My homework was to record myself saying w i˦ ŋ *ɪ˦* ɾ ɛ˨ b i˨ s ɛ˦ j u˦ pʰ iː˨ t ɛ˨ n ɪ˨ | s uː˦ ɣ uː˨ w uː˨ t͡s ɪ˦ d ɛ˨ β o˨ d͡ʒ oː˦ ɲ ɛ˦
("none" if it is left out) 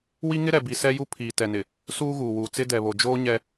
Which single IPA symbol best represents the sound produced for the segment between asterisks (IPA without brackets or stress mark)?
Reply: ɪ˦